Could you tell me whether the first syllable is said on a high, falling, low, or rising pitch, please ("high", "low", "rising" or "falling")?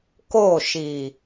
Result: falling